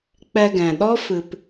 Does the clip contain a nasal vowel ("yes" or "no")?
yes